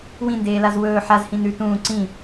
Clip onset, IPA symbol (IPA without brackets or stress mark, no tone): w